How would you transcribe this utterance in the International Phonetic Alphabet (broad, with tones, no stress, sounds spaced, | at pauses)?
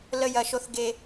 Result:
l ə˦ j ɐ˦ ʃ o˦ θ ɡ e˦